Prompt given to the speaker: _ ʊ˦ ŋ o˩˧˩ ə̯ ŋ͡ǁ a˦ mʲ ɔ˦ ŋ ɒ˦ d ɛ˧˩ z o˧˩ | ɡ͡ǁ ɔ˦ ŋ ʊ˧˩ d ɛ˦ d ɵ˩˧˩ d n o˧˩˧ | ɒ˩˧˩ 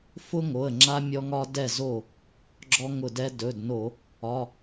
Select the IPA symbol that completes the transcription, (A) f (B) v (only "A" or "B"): A